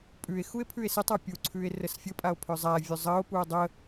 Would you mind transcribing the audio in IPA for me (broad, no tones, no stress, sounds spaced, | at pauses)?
pʼ ʉ e̯ x u e̯ pʰ ʉ e̯ s ə tˤ a pʲ u ǀʰ ʉ e̯ r ə s fʲ ə pʼ a o̯ pʰ ʏ zˤ æ vʲ ʉ zˤ ɜ o̯ p u o̯ dˤ ə